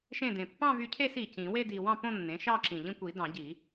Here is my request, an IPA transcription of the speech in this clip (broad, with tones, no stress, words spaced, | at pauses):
ʃẽ˥˩ dẽ˨˩pːɑ̃˥˧vy˧cʰe˥˧s i˨˩cĩ˨˩˦ we˥˧di˨˩˦wɑ̃˧põ˥˧ nːẽ˩˥ʃɑ˥˧ǁĩ˨˩ ʎĩ˥˧kʷi˨˩˦dɑ̃˨˩˦ɟi˨˩˦